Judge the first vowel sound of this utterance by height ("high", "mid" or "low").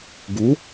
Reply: high